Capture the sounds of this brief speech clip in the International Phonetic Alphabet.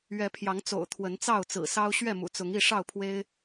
ɥ ɛ˨˦ pʰ j ɑ˨˦ ŋ t͡s o̰˨˩ ʊ̯ t̪ʰ w ə˨˦ n t͡s ɑ˥˨ ʊ̯ t͡s ɹ̩˨˩ s ɑ˦ ʊ̯ ɕ ɥ ɛ˥˨ m ṵ˨˩ t͡s ʊ˨˦ ŋ i˥˨ ʂ ɑ˥˨ ʊ̯ pʰ w e˦ ɪ̯

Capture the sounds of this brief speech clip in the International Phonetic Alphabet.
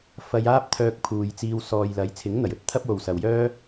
f ɐ˧ j aː˥ p̚ t̪ʰ œː˧ k̚ pʰ uː˨ j t͡s iː˧ w s ɔː˨ j l ɐ˨˥ j t͡sʰ ɪ˨˥ ŋ n̪ ɐ˨˩ j ɵ˧ t̚ t̪ʰ ɐ˥ p̚ w o˨ w s ɐ˨ w j œː˥

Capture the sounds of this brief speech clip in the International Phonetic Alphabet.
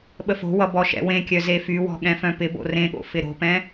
ɓ ə f o̤ w ʌ b ɔ ʃ ɛ̰ w ẽ kʲ œ z e f y w ɔ̤ ɠ ɛ̃ f œ̃ p ɪ b o̰ r ẽ ɠ o̰ f ɪ ɾ o̤ p ɛ̃

